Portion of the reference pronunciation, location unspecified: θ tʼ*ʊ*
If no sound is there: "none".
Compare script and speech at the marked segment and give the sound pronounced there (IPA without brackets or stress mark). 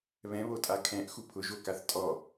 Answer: ɔ